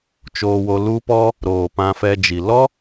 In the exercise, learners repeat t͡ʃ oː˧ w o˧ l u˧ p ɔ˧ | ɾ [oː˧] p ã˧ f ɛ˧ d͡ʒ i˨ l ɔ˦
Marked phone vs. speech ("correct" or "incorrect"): incorrect